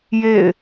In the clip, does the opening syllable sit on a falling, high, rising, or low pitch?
falling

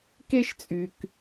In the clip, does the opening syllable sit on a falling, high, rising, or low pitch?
high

